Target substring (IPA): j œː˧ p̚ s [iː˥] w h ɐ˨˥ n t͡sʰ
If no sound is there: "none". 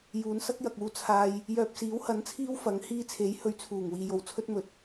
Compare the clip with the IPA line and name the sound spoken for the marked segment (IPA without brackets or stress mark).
iː˨˥